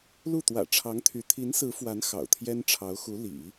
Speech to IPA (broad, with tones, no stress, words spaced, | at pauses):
lu˥˩t̪wä̰˨˩ʈ͡ʂʰɑ˧˥ŋt̪ʰy˧˥ t̪ʰi˧˥nsɹ̩˧˥fwa˧˥n xɑ̰˨˩ʊ̯t̪ʰjɛ˥n ʈ͡ʂʰɑ˧˥ʊ̯xu˧˥ lḭ˨˩˦